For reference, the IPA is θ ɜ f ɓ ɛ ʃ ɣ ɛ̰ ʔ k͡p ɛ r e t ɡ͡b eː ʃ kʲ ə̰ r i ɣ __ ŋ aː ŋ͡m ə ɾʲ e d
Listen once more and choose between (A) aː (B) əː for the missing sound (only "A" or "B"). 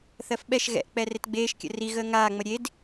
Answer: B